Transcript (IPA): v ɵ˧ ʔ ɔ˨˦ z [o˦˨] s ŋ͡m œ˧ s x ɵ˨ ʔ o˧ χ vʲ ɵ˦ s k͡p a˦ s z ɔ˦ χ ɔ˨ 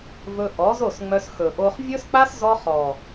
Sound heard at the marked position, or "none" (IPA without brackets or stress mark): o˦˨